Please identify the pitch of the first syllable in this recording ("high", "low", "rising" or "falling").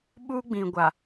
high